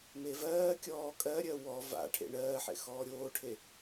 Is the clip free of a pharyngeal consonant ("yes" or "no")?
no